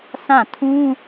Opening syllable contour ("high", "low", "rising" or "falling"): falling